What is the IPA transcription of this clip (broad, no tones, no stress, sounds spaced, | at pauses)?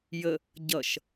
j ə | ɟ ʌ ʃ